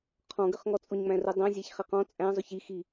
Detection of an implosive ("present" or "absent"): absent